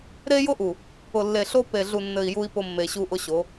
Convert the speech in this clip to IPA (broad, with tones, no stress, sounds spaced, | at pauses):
ɾ e˦ j ʊ˦ ʔ u˨ | ʊ˨ lː e˨ ɬ o˦ p e˨ ɮ u˨ nː ɘ˨ i̯ j u˦ i̯ p ʊ˦ mː e˨ ɕ u˦ ʔ ʊ˦ ɕ o˨˦